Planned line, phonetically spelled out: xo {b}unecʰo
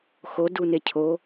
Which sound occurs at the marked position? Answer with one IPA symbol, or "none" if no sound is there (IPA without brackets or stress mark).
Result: d